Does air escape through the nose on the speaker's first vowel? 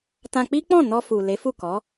yes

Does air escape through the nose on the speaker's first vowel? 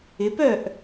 no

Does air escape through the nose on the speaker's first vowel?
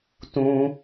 yes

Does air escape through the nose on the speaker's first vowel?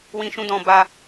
yes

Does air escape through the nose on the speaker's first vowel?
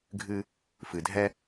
no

